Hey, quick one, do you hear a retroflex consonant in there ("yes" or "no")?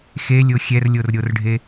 yes